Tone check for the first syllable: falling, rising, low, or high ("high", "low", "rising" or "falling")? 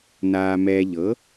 low